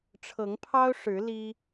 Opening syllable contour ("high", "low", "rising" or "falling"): rising